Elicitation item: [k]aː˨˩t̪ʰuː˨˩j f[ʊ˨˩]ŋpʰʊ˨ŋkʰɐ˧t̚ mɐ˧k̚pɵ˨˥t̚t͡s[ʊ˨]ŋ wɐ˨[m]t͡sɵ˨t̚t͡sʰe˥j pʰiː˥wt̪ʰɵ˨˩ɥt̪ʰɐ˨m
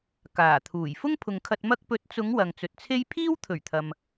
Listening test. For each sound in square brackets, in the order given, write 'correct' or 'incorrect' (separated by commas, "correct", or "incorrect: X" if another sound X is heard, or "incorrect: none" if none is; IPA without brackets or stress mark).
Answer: correct, incorrect: ʊ˥, incorrect: ʊ˨˧, incorrect: ŋ